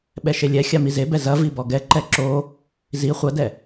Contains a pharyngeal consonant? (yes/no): no